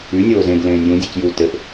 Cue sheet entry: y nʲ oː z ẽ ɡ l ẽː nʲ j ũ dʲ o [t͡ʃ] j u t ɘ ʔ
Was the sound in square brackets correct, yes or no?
no